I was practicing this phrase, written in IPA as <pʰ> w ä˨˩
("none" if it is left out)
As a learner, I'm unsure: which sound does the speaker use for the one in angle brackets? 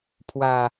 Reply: pʰ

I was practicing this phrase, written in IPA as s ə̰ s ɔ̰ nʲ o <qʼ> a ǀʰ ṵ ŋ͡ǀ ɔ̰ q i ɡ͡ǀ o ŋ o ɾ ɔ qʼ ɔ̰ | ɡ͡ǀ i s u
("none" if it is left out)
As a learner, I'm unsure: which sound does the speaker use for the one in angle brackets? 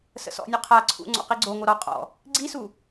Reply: qʰ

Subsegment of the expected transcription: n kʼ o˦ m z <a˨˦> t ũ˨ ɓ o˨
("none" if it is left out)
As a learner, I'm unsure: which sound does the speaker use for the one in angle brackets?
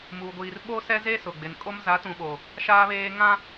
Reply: a˨˦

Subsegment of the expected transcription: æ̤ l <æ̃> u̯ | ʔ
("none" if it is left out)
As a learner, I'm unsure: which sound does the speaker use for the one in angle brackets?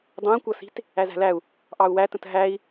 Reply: æ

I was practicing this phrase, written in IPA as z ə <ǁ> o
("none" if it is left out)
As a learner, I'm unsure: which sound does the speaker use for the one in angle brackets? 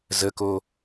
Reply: k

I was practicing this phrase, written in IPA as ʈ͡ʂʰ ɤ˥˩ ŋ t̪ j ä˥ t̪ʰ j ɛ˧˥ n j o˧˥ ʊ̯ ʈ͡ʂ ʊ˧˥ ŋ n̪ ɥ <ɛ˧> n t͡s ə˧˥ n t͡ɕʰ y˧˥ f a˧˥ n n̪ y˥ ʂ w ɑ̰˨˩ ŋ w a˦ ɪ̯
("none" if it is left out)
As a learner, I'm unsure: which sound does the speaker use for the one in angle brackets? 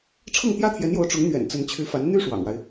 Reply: ɛ̰˨˩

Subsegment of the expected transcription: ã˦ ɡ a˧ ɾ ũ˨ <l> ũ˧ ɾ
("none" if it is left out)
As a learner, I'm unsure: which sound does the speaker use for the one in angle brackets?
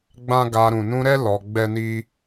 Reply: n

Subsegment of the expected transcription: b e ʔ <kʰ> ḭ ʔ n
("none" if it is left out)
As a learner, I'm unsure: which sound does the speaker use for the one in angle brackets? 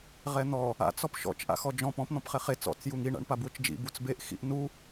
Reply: x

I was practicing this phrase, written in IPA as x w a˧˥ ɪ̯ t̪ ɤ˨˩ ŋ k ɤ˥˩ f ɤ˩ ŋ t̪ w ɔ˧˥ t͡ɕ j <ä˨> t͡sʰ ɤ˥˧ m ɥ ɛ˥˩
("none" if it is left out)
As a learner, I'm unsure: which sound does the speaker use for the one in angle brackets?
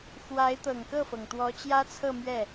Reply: ä˥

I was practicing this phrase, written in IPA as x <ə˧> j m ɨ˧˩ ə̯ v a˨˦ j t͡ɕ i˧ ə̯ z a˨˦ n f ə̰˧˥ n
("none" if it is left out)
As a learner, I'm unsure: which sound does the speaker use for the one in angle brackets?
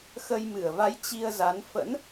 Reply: ə˧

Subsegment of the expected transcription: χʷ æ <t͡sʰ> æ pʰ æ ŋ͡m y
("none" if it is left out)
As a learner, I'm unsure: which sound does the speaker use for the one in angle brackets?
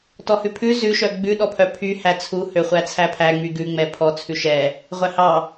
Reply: t͡sʰ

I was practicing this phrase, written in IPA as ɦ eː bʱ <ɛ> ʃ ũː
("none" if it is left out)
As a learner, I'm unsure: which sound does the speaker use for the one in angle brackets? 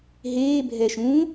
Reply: ɛ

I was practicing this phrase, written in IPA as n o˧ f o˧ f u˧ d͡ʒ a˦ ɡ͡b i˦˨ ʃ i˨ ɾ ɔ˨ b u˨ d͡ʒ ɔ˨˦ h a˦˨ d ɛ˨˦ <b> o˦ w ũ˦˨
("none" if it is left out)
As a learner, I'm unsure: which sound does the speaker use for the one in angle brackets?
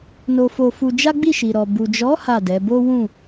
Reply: b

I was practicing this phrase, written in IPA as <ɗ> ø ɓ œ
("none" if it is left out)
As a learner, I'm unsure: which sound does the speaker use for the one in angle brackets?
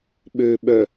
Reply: ɓ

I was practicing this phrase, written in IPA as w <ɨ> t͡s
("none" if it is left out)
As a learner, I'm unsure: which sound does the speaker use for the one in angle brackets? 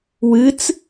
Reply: ɨ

